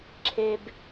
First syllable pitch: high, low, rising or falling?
low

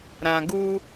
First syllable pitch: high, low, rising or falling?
low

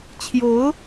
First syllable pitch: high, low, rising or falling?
rising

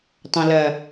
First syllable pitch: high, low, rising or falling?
low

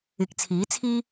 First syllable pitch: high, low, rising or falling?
rising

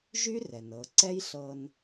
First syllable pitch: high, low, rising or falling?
high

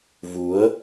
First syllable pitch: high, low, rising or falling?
rising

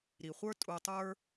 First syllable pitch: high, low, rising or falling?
low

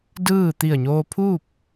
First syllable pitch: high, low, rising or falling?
falling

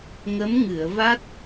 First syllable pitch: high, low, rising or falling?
rising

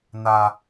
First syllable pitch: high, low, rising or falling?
low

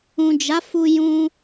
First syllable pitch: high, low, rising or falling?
low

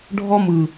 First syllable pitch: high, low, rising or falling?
high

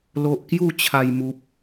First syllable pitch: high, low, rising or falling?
low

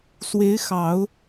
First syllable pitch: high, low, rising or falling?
rising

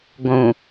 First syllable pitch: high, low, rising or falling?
low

